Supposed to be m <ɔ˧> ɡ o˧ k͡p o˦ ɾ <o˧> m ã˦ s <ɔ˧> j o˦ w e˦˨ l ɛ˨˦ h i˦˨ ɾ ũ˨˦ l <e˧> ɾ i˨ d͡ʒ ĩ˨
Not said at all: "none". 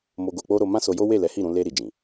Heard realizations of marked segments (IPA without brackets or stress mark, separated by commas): o˧, o˧, o˧, e˧